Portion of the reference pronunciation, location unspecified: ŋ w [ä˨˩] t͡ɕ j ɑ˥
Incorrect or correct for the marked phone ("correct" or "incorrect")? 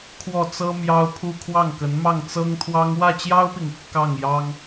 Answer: incorrect